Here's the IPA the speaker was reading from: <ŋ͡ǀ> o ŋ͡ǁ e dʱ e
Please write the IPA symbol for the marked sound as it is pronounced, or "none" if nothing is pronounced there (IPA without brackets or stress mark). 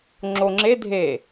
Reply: ŋ͡ǁ